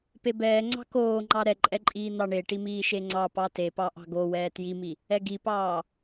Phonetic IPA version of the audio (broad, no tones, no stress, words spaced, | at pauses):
pebɛːŋ͡ǀɑ̤ koːŋ͡ǃɑ ɾɛǃʼɛǃʼiː n̪ɑɳeʈi miːʃeŋ͡ǀɑ pɑte pɑʔɑ̤ɡo wɛːtjimi | ɛɡipɑː